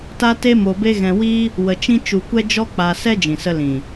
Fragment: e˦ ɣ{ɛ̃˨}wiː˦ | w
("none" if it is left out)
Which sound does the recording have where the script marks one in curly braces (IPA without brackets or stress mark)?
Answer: ɛ̃˧